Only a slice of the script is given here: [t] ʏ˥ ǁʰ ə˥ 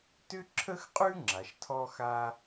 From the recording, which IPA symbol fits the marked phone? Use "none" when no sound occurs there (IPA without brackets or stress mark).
t